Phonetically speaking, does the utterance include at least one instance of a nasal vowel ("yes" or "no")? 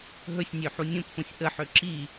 yes